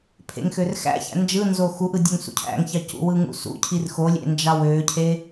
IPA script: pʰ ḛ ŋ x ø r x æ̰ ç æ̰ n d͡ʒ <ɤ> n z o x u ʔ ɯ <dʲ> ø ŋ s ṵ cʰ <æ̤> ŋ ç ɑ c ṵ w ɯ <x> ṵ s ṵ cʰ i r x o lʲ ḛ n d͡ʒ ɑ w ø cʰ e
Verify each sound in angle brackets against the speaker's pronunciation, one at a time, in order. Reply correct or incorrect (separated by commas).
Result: incorrect, correct, incorrect, incorrect